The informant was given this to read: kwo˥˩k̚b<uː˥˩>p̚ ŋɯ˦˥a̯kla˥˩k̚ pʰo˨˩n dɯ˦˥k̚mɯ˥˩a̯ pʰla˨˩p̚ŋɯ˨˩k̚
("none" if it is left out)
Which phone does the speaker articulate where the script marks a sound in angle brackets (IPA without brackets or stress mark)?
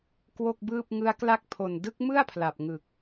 ɯː˥˩